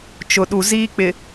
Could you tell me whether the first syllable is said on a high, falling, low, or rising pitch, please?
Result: low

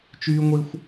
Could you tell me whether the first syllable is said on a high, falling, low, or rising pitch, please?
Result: high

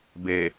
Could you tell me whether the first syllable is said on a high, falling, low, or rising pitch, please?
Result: low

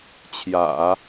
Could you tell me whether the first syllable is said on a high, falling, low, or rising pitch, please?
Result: low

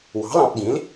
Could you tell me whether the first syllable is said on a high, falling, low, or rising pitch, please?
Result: rising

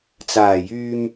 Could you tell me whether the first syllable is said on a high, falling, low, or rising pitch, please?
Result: low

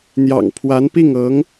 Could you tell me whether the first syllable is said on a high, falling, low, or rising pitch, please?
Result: low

